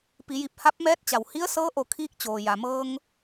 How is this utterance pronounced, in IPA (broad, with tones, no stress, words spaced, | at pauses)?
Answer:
pi˩˧ji˧˩p̚ ha˧˥p̚mɛː˧˥t̚t͡ɕa˩w hi˧˥ə̯sɤː˧˥ʔo˧˩kʰiː˧k̚ t͡ɕoː˩ja˩ mɤː˧ŋ